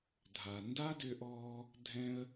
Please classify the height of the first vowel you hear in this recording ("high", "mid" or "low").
low